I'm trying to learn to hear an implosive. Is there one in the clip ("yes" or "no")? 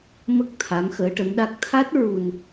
yes